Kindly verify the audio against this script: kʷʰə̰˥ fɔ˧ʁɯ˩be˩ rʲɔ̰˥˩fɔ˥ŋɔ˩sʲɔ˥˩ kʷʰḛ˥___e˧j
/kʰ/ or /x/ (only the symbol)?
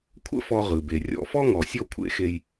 x